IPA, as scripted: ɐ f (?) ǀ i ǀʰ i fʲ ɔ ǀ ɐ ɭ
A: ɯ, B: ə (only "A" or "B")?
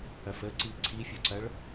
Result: B